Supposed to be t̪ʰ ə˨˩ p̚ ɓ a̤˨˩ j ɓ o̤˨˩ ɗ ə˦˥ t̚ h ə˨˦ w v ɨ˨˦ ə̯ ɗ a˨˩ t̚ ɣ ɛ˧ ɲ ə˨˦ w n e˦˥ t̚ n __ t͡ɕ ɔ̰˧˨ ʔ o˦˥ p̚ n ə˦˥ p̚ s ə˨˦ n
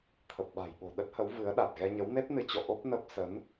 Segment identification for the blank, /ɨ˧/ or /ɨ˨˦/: ɨ˨˦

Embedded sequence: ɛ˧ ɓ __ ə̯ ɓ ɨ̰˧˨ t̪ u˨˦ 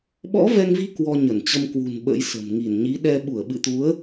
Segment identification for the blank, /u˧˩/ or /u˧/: u˧˩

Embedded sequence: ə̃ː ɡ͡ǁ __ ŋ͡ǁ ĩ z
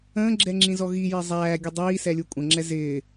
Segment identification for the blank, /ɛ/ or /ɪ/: ɛ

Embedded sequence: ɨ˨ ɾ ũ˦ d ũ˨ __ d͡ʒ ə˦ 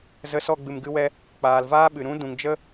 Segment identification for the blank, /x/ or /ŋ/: ŋ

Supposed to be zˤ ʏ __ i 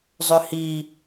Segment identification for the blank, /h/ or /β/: h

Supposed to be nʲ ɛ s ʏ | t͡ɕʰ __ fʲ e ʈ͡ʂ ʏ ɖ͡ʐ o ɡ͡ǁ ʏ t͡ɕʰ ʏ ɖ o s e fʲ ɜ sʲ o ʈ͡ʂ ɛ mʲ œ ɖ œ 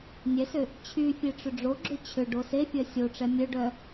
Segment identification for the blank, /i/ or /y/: y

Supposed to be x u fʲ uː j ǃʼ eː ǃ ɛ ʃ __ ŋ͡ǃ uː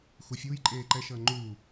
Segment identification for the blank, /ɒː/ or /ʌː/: ʌː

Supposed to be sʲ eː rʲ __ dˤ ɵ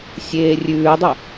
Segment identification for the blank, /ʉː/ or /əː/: ʉː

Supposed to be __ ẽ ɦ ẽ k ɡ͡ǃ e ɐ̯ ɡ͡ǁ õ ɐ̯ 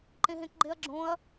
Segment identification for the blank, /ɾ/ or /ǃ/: ǃ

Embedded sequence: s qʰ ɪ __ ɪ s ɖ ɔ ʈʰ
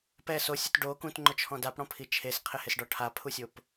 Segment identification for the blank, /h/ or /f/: h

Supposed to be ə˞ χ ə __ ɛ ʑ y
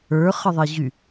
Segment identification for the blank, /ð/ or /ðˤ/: ðˤ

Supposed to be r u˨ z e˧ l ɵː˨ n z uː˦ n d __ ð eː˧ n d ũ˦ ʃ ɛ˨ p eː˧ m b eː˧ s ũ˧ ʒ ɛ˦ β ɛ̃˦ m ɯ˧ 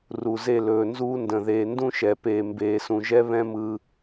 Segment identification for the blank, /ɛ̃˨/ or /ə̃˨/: ə̃˨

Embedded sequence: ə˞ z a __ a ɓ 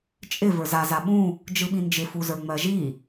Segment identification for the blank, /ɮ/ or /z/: z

